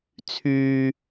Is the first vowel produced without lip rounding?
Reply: no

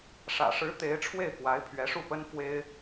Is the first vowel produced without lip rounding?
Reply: yes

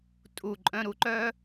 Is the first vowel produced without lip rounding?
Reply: no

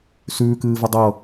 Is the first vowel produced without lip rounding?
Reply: no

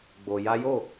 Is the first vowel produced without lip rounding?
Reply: no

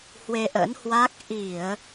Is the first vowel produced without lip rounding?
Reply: yes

